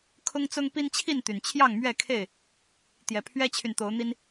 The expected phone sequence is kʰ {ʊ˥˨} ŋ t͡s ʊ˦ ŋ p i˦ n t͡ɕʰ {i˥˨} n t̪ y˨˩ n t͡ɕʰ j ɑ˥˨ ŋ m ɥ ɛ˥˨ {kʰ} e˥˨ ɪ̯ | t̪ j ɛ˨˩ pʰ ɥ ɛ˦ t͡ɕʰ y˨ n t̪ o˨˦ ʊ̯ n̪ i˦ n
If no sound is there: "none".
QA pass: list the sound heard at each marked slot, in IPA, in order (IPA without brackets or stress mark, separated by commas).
ʊ˦, i˥˨, kʰ